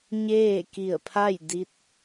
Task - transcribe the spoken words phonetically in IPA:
ɲ eː˥˨ k i˧˩ ə̯ pʰ a˥˨ j d i˧˥ t̚

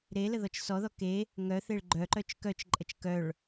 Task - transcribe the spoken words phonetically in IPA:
ɾ e l ə ð ɔ t͡ʃ s ɔ ð ɔ k e | ŋ œ θ e ɭ ɡ͡ǃ œ ǃ œ t͡ʃ k œ t͡ʃ ǃʼ ə t͡ʃ k œ ɭ

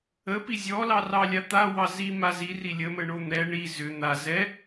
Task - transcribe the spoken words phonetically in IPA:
ə p i zʲ ɔ l ɑ r ɑ lʲ a t̪ a w ɑ z i m a z i r i lʲ ə m ə ɳ o n̪ ɛ ɳ i z ʏ n̪ a z ɛ

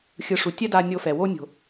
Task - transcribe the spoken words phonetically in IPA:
xʲ ɯ˨ ʂ u˨ tʲ ɛ˦ d a˦ nʲ o˦ f ɛ˨ w o˦ nʲ o̤˨

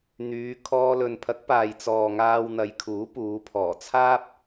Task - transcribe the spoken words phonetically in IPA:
n̪ yː˨˧ kʰ ɔː˧ l ɵ˨ n pʰ ɐ˨˥ k̚ p aː˨ j t͡s ɔː˨ ŋ aː˧ w n̪ ɐ˨˧ j kʰ uː˨˥ p uː˨˧ pʰ ɔː˨˩ t͡sʰ aː˥ p̚

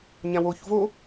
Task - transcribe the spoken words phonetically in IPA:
ɲ ã w o ç v o

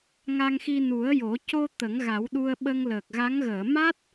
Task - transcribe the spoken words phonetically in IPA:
ŋ a˧ ŋ x i˧ n u˨˩˦ ə̯ j o˨˩˦ c o˧ t̪ ə˨˩˦ ŋ ɣ a˨˩˦ w ɗ u˧ ə̯ ɓ ə˧ ŋ l əː˨˩ k̚ ɣ a˧˥ ŋ ɣ əː˨˩˨ m a˦˥ t̚

